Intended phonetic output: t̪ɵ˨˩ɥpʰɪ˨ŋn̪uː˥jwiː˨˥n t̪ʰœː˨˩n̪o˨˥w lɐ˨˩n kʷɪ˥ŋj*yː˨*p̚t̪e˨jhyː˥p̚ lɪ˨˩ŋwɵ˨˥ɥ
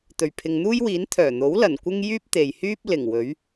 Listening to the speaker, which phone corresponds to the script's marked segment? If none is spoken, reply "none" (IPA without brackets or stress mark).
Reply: yː˥